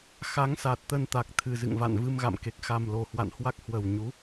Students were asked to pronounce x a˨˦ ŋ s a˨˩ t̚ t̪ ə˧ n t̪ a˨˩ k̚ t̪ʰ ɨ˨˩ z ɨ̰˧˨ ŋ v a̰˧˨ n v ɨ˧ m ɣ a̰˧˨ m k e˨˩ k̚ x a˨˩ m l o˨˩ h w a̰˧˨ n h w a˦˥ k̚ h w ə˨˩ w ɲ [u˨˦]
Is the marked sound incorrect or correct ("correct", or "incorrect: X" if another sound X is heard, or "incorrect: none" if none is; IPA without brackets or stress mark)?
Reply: correct